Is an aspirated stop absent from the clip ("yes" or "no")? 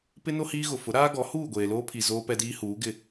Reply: no